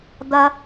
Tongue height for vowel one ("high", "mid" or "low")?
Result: low